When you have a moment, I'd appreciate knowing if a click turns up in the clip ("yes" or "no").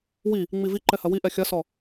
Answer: yes